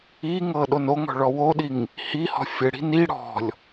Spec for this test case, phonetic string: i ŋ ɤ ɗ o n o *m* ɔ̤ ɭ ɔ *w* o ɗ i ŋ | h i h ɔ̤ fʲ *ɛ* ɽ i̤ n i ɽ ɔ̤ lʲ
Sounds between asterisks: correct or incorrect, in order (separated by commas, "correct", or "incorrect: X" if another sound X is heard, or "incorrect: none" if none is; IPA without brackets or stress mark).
incorrect: ŋ, correct, incorrect: ɘ